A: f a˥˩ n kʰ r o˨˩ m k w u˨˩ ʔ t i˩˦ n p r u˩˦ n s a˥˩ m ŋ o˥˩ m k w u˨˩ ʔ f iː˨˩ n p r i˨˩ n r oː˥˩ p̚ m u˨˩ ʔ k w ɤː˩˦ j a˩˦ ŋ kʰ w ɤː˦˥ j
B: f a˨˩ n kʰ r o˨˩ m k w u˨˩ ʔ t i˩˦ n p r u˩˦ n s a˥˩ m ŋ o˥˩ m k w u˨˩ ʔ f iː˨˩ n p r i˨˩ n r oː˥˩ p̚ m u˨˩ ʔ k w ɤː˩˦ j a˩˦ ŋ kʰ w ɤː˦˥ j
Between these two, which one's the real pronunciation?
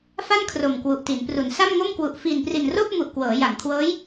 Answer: A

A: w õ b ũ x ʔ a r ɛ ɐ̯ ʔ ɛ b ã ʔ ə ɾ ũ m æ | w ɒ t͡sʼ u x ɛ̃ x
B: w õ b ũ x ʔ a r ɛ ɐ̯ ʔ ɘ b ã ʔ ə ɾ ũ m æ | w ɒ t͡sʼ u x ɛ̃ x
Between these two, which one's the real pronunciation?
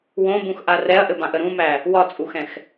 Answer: B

